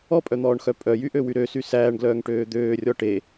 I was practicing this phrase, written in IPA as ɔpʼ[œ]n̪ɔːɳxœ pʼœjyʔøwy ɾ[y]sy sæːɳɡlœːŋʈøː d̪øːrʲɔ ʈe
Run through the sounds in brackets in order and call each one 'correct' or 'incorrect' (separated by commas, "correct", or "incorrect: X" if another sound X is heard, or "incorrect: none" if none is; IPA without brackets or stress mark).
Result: correct, incorrect: ø